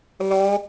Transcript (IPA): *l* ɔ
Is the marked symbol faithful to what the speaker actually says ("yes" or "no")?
yes